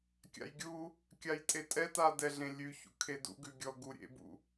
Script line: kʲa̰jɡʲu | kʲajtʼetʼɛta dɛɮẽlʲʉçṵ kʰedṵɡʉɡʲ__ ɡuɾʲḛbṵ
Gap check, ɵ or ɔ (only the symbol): ɔ